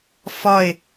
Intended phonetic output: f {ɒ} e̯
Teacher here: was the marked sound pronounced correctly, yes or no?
yes